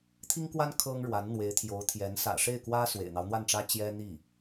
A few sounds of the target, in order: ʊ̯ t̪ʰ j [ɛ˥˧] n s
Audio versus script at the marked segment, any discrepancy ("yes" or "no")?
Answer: yes